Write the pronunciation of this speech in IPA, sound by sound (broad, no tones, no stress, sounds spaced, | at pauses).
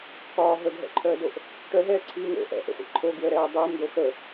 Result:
k ɒː ɦ ə ɡ ɦ ɛ̰ ǃʰ œː d o ʔ | ʈ œ ɦ ɛː ǀʰ iː ŋ o̰ ʔ ɛ̰ ʔ ə̰ χʷ ḭ ǃʰ o ɡ w ə ɾ ɛː dˤ əː m d̪ o x ə